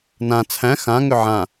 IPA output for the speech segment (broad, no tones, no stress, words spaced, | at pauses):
nã t͡sʰæ̃ xã ŋʏʕã